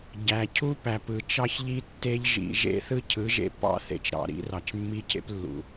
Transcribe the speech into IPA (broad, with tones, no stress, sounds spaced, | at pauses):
ɟ æ˨ cʰ u˦ p æ˨ p ɯ˨ t͡ʃ ɑ˦ ç ʎ i˦ tː e˦ ʎ ʒ ḭ˨ ʒ ḛ˦ θ ɯ˦ cʰ ɯ˨˦ ʒ ḛ˦ p ɑ̰˦ θ ḛ˨ t͡ʃ ɾ ɑ̰˨ ɾ ḭ˨˦ r ɑ˨ t͡ʃ mː i˦ cʰ ḛ˦ p lː ṵ˨